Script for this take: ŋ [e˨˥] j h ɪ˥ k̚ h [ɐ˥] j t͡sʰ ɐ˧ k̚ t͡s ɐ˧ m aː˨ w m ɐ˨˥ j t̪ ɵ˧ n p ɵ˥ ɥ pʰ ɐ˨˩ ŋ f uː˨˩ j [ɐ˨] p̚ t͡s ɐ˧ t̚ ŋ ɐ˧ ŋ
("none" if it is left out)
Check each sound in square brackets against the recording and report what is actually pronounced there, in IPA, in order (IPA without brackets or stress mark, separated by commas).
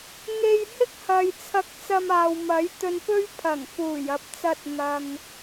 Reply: e˧, ɐ˨, ɐ˨